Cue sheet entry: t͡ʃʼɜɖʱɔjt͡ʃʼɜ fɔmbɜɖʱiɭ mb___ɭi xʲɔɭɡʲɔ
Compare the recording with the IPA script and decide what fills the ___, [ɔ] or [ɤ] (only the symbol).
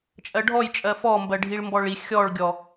ɔ